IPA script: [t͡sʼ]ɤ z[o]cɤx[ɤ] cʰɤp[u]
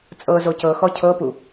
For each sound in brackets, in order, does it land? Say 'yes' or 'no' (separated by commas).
yes, yes, no, yes